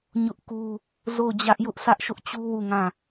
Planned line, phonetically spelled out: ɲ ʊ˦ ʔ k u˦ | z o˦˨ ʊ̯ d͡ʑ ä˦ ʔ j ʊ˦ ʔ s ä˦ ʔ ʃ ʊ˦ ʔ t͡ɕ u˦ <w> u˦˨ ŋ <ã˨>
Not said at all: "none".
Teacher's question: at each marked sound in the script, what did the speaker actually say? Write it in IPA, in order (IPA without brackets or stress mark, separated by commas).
w, ã˦˨